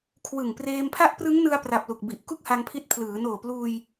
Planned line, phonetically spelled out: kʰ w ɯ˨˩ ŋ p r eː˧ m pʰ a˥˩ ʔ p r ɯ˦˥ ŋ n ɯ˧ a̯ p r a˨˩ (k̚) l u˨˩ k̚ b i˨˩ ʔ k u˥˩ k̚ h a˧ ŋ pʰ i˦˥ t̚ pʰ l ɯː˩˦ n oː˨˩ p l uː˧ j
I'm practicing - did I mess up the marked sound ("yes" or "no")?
yes